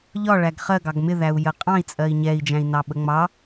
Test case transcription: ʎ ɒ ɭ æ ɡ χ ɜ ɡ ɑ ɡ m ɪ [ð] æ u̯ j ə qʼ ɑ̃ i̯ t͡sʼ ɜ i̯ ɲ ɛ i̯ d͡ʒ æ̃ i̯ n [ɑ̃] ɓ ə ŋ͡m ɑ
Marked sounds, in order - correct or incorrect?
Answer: correct, incorrect: ɑ

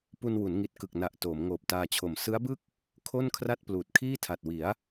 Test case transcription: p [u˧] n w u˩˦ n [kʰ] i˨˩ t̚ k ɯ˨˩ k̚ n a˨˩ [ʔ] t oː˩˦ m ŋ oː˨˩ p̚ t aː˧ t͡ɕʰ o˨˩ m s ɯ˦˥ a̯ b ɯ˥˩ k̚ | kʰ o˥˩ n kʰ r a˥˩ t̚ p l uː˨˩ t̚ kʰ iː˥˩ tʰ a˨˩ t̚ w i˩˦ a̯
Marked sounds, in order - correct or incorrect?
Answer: correct, incorrect: ŋ, correct

